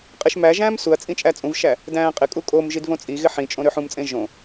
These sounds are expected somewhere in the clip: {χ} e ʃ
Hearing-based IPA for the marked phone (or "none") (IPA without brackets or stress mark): qʼ